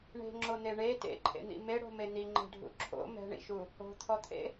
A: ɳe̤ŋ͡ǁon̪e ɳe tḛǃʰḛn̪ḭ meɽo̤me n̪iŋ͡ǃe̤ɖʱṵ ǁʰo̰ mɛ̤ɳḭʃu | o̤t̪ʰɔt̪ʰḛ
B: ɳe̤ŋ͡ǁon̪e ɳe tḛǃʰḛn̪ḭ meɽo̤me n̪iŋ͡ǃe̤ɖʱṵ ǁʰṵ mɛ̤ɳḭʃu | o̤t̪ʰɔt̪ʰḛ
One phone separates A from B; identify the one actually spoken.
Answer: A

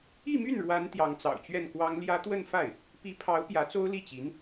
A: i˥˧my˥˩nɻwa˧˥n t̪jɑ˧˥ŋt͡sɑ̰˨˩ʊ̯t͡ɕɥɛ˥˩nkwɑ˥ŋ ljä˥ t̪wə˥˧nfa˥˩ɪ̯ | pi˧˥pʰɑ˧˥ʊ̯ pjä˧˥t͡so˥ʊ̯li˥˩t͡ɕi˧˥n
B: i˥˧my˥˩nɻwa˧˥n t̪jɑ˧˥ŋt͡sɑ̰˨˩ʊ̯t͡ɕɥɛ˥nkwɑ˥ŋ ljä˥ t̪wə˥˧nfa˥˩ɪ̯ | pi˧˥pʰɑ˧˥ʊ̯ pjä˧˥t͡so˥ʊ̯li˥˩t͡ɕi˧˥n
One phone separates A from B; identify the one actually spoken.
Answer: A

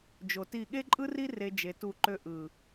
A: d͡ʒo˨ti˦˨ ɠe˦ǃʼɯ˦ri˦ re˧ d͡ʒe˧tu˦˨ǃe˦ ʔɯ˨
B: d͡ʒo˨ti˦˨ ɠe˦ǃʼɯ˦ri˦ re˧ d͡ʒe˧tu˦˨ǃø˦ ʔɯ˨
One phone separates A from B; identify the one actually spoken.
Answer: B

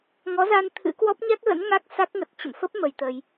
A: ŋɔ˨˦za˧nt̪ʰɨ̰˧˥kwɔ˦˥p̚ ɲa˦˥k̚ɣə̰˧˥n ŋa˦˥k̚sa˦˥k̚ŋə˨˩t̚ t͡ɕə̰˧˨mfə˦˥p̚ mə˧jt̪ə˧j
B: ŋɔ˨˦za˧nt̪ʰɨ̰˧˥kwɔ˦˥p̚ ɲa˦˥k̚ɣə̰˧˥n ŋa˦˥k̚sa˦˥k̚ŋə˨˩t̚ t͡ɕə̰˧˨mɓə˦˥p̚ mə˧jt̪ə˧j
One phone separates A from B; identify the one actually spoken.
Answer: A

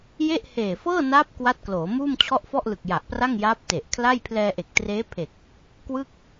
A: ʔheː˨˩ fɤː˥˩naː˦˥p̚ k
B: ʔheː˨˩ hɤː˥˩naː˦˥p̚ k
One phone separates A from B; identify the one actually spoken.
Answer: A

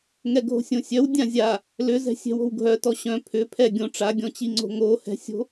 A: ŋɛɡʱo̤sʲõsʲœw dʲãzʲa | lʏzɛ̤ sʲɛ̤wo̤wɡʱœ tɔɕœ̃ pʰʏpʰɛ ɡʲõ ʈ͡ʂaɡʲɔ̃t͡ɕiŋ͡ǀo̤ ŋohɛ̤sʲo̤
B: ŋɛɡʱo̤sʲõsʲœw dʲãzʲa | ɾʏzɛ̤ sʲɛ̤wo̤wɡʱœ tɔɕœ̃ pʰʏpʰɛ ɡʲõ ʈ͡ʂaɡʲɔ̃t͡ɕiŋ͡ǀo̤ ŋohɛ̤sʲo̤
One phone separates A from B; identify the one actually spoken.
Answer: A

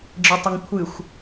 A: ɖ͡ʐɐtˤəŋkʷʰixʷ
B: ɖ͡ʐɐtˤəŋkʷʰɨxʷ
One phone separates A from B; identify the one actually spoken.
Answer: B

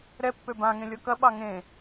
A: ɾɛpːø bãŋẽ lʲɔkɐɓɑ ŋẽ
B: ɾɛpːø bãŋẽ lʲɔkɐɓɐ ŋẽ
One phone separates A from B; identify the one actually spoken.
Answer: A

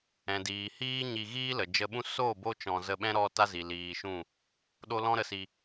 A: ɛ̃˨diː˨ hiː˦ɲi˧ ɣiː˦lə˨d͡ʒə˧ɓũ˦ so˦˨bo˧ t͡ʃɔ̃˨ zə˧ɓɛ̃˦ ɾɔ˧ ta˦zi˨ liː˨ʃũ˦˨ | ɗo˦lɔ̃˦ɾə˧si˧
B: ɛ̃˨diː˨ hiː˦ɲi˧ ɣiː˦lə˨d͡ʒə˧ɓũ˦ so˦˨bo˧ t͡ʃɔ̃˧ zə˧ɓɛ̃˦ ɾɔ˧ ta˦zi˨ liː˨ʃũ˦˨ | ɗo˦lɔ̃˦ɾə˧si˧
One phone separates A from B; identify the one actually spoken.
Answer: B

